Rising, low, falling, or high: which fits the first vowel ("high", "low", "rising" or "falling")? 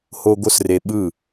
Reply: high